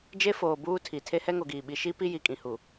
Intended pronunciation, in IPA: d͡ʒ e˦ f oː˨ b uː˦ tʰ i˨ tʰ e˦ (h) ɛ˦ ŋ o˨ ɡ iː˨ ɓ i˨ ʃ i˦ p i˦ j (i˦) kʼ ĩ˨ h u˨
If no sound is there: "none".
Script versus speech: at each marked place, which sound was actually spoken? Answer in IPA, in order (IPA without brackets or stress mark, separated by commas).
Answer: h, i˨